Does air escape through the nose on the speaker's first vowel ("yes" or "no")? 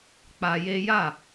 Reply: no